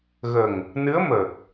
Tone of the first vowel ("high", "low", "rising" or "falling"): low